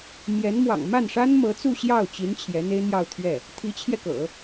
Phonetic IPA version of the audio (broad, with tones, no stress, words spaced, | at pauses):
mjɛ˧˥nmwɑ̰˨˩ŋ ma˥˩nʂa˥nmɤ˧˥ t͡su˥˧ɕjɑ˥˩ʊ̯ t͡ɕi˧˥n t͡ɕʰjɛ˧˥n̪e˥ɪ̯n̪jɑ˥˧ʊ̯t̪ʰɥɛ˥˩ | t̪ʰi˧˥t͡ɕʰjɛ˧kɤ̰˨˩˦